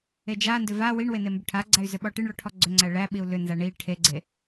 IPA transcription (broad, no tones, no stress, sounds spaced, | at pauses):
e d͡ʒ a n d ʏ v a w i ɳ w e n e m b ʏ ʈʰ a ɡ͡ǀ æ y̯ z ʏ ɓ ɔ ʈ i ɳ ɭ ɔ ʈʰ ɔ ɡ͡ǀ ʏ ŋ͡ǀ æ ɭ æ ɓ i u̯ l ʏ n z a ɳ i ʈʰ e ɡ͡ǀ e